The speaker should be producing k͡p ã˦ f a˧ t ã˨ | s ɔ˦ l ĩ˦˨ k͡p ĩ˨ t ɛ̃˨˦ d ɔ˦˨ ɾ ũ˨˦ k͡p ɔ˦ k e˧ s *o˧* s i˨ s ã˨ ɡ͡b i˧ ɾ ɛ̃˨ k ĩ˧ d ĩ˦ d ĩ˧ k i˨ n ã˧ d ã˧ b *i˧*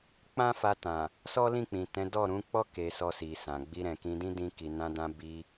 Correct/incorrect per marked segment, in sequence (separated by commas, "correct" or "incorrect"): incorrect, correct